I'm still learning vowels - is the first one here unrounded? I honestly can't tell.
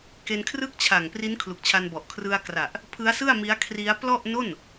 yes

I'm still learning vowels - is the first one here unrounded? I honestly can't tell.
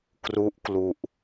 no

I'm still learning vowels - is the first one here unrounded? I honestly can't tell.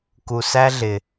no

